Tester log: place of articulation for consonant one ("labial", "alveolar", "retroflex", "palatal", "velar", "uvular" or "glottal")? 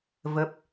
labial